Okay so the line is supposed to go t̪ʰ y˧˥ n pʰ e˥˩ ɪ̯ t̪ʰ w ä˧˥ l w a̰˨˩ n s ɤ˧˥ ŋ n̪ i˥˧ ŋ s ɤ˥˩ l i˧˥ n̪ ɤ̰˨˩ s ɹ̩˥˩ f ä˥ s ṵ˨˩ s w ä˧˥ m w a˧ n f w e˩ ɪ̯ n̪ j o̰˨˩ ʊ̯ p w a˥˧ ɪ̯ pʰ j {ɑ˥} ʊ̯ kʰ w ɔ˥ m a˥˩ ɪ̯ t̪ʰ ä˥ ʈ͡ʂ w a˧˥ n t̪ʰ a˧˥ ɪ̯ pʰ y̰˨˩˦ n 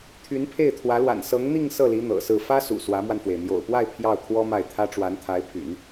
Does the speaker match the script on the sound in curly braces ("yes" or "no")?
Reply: no